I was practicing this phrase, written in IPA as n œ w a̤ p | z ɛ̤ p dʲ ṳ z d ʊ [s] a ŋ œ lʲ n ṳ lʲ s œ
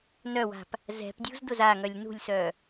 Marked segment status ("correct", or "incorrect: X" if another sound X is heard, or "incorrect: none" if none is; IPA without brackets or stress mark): incorrect: z